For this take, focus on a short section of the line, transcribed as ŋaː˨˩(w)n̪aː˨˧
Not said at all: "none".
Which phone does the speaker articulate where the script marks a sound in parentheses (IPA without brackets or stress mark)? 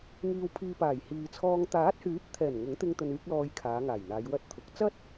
j